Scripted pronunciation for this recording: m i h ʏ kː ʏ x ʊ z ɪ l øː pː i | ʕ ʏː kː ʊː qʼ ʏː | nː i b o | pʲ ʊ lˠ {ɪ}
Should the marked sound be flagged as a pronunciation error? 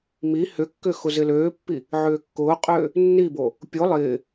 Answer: yes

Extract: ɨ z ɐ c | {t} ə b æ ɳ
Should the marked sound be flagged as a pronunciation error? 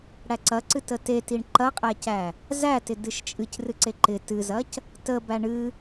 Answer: no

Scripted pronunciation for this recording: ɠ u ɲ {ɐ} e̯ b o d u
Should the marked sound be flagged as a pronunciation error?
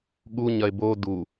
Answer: no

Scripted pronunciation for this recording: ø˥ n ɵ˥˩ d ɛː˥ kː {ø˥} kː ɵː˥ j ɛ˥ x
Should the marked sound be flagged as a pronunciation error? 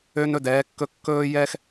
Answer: yes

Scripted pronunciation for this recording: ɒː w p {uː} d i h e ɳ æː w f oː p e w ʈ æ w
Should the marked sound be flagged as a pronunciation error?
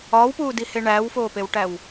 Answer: no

